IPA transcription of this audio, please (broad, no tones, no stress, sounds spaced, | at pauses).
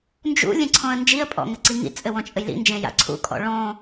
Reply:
n d͡ʒ ṵ lʲ ẽ ǀʰ ɔ̃ ə̯ n d͡ʒ i ə̯ pʼ ɔ̰ ŋ ɘ ǀ i ŋ ḭ t͡sʼ ɘ w ɔ̃ t͡ʃʼ ɘ j l ḭ n d͡ʒ ẽ j a̰ ǀʰ ṵ kʼ ɔ̰ ɭ ɔ̃